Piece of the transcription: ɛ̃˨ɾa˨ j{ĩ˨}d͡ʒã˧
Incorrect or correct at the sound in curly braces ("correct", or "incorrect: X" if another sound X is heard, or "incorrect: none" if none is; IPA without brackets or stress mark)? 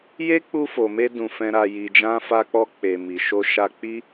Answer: incorrect: i˨